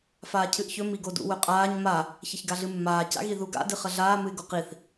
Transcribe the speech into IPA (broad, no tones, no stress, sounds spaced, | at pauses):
f aː cʰ ɨ ʔ ç ɵ m i ɡ o d ṵ w ɵ qʼ aː ɲ m a | ç ɐ ç ɡ a ɮ ɨ mː aː c a̰ ɣ i ð u ɡ a̰ d ɨ χ ɐ ɮ aː m ɨ ɪ̯ ɡ o q i θ